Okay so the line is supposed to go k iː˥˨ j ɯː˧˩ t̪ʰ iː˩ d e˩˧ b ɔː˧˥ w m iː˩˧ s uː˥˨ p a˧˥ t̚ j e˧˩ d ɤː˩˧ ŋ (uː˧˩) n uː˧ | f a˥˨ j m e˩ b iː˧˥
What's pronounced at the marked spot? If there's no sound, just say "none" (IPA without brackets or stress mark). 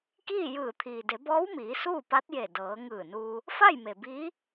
ɯː˧˩